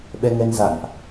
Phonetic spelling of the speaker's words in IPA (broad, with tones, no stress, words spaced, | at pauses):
ɓɛ˧ŋɛ˧nza̰˧˨nʔ